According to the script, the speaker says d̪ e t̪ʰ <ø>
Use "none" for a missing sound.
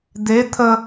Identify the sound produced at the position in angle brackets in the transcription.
ə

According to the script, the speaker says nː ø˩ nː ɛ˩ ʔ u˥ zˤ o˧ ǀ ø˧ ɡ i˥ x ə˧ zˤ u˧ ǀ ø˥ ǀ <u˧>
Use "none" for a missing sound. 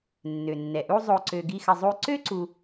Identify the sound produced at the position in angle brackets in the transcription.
u˧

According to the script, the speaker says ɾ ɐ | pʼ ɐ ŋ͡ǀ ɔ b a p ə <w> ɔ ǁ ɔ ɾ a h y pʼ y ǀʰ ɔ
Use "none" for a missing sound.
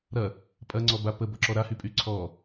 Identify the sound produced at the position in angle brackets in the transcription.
b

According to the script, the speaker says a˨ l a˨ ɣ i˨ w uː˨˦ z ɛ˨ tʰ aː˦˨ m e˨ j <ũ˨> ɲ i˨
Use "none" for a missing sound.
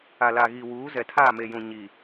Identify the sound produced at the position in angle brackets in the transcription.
ũ˨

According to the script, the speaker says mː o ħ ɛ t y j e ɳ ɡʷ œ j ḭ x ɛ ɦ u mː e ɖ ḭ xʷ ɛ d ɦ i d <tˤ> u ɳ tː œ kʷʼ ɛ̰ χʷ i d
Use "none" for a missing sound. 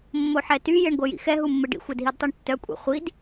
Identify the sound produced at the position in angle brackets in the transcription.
tˤ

